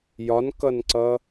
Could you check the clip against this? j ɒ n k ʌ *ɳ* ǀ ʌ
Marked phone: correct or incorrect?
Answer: incorrect